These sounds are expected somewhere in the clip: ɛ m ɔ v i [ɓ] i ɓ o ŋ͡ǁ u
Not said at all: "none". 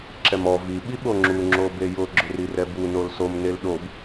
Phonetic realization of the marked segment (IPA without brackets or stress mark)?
ɓ